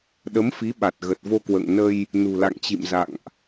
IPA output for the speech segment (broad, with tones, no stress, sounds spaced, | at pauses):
ɗ ə˨˦ m f i˨˦ ɓ a˨˩ t̚ ɣ ə˨˩ t̚ v o˧ k w ə̰ː˧˨ ŋ n ə˧ j | n ṳ˨˩ l a̰˧˨ ŋ t͡ɕ ḭ˧˨ m z a̰˧˨ ŋ ʔ